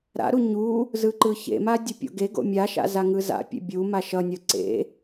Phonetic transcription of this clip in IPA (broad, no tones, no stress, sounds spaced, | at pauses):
ɾ a̰ ɾ u ɲ u | z ɯ ǃ ɯ ç ḛ m a dʲ ʌ pʲ o̰ ɡ e ɡ o̰ mʲ a ʃ a̰ z a ŋ ɯ z a̰ pʲ ḛ bʲ u m a ʃ ʌ nʲ ʌ ǀ ḛ